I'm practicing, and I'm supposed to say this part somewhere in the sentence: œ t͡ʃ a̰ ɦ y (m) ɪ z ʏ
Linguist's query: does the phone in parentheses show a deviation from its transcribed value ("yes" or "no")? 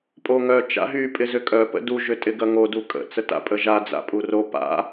yes